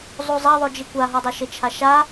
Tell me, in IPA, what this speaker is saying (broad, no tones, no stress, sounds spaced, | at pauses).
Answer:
zˤ u zˤ ɐ ðˤ o d͡ʒ i kʷ a ɦ ɔ dˤ a ʃ ɘ t͡ʃʰ a ʃ a